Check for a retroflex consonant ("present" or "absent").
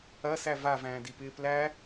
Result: absent